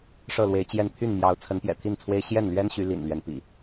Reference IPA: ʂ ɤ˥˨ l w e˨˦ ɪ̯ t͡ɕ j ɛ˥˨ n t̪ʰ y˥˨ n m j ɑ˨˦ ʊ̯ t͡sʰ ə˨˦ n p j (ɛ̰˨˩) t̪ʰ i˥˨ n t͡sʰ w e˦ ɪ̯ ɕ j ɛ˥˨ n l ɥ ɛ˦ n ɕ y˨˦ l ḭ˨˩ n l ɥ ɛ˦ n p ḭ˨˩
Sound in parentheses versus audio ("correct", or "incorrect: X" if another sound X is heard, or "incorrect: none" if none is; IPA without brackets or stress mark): correct